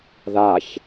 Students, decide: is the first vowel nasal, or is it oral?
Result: oral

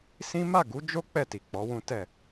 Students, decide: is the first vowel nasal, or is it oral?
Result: nasal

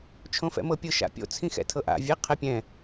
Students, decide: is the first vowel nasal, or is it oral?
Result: nasal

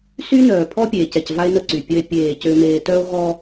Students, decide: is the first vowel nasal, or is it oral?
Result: oral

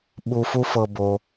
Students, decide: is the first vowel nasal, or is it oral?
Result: oral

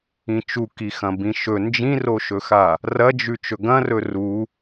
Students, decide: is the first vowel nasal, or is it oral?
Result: nasal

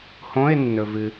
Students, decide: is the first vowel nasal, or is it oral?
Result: nasal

